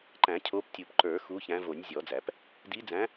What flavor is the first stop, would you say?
click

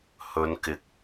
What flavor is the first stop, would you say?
plain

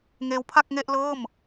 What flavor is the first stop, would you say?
aspirated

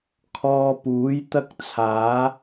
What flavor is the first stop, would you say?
aspirated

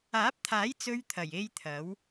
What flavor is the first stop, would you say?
plain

